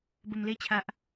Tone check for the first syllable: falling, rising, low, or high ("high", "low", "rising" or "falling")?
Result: low